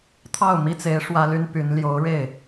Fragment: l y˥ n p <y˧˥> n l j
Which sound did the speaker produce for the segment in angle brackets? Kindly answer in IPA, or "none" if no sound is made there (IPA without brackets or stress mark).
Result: y˧˥